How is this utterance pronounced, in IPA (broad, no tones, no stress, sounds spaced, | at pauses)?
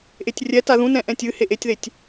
ʔ e tʲ rʲ ɛ t a ð ũ n ɛ̃ ʔ ɛ̃ tʲ ɨ h e ʔ e tʲ ð e tʲ